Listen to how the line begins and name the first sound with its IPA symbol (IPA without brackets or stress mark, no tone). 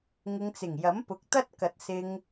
ŋ